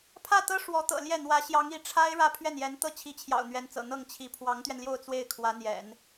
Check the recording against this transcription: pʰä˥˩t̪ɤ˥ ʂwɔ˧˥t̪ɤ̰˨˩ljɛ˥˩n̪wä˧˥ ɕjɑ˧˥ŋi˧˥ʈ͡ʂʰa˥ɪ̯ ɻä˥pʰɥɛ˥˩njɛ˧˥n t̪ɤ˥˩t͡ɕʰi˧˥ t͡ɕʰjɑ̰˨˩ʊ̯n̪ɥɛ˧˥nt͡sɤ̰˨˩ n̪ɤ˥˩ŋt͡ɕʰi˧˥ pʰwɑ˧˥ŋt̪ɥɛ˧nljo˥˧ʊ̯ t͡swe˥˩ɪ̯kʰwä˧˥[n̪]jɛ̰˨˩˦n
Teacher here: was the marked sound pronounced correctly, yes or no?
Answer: yes